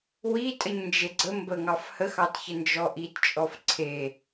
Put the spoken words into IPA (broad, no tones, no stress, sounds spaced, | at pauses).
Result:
w i tʼ ə ɲ n d͡ʒ e ɡ͡ǀ ə m b ə ŋ ɑ f h ə x ɑ t ç ə n d͡ʒ ɔ ʔ i t t͡ʃʼ ɔ f ǀʰ e